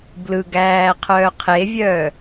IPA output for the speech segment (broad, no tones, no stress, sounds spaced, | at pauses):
b l ɯ ɡ æː qʰ œː qʰ e vʲ œː